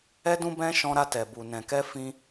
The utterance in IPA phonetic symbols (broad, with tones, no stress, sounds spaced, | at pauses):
ɛ˧ d ũ˧ b ɛ̃˧ ʃ ɔ̃˧ ɾ a˧ t ɛ˨ b u˨ n ɛ̃˨ k ɛ˧ f ĩ˧